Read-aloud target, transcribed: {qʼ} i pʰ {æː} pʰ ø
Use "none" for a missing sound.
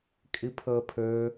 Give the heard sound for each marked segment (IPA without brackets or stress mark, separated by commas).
kʼ, əː